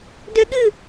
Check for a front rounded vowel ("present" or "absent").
present